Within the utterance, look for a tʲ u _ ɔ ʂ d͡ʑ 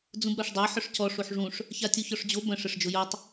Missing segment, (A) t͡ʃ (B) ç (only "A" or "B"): B